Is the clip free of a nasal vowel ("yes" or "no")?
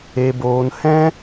no